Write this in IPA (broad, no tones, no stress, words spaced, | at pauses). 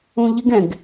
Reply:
ũʎɪɡ ɛ̃ɡ